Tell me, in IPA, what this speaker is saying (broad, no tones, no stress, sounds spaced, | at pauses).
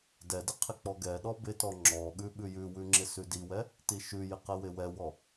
d ɛ d ɪ qʰ ɪ k͡p ɔ ɡ ɛ ɗ ɔ b ɪ t ɔ ŋ͡ǁ ɔ ɠ ʉ ɓ ʉ j ʉ w ʉ ŋ͡ǁ ɪ s ʉ d i w ɛ | t i ʃ ʉ j ɪ q ɛ w ɪ w ɛ w ɔ